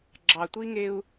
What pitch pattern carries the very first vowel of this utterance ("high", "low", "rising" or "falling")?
low